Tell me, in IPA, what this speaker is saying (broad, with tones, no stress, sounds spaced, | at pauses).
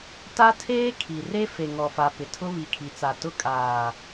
t a˦ tʰ eː˦ kʰ i˨ r e˦ f e˨ ŋ ɔ˨ f a˨ p ɪ˨ tʰ ʊ˦ β i˨ kʰ i˨ t͡s a˨ t ʊ˦ kʼ aː˨